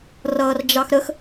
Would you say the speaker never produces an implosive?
yes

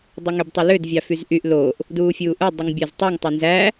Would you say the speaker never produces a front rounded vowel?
no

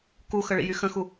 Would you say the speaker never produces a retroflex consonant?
no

